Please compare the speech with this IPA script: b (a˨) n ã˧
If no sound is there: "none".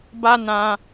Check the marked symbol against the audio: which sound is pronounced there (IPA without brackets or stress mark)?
a˦